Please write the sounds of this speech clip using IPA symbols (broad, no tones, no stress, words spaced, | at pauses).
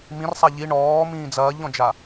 mĩrsˤa ʎi ɳɔːmĩː d͡zɐːʎɔ̃d͡ʒa